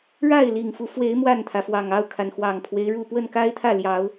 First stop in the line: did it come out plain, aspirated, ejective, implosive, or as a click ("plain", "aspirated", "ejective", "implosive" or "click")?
aspirated